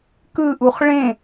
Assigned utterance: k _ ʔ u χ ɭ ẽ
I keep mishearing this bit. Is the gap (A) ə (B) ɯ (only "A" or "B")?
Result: B